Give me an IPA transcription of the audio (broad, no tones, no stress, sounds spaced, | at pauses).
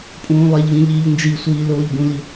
pʼ ũː lˠ e ʎ v ĩ ʎ iː ʎ n d͡ʒ i sʷ iː l oː ʎ b ũ l i